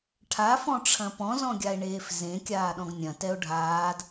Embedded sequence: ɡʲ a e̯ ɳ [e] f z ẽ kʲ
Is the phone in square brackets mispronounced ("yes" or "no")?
yes